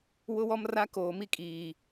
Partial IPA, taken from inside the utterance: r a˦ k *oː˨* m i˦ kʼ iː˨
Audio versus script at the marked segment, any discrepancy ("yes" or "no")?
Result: no